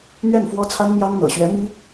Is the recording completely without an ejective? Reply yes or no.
yes